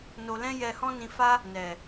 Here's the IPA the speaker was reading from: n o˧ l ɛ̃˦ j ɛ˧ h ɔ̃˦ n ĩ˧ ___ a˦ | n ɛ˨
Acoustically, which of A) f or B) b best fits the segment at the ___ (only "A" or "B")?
A